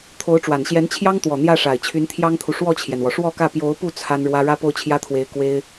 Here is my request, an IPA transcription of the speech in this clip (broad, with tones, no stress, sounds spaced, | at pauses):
t̪ʰ o˧˥ ʊ̯ ʈ͡ʂ w a˨˩ n ɕ j ɛ˧˥ n t͡ɕʰ j ɑ˥ ŋ t̪ w ɔ˨˩ n̪ j ä˥˩ ʂ a˨˩ ɪ̯ t͡ɕʰ y˧˥ n t̪ʰ j ɑ˥ ŋ t̪ʰ u˨ ʂ w ɔ˥˩ t͡ɕʰ j ɛ˩ n w ɔ˩ ʂ w ɔ˥˧ k ä˥˩ p j o˧˥ ʊ̯ p u˥˩ t͡sʰ a˥ n ɻ w ä˥ ɻ ä˥ p o˥˩ ʊ̯ t͡ɕʰ j ä˥ t̪ʰ w e˧˥ ɪ̯ k w e˥ ɪ̯